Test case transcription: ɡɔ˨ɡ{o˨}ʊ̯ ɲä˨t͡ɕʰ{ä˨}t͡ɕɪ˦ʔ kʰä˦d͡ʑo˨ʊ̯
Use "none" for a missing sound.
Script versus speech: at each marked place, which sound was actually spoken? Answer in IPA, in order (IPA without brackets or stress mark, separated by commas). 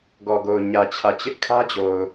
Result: o˨, ä˨